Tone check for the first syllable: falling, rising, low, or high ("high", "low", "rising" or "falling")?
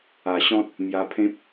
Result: low